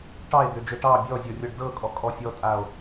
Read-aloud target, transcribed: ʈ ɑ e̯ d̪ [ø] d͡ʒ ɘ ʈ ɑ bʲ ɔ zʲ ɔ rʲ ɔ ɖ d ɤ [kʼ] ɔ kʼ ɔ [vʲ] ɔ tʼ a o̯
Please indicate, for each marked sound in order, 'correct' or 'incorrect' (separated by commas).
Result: correct, correct, incorrect